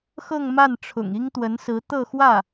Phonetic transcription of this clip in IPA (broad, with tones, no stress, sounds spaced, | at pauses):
x ɤ˥˧ ŋ m a˥˩ n ʈ͡ʂʰ ʊ̰˨˩ ŋ i˥ ŋ t̪ w ə˧˥ n s ɹ̩˧˥ t̪ ɤ˥˧ x w ä˥˩